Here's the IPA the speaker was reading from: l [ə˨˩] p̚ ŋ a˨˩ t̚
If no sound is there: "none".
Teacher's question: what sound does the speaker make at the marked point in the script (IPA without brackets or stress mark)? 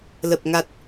ə˨˩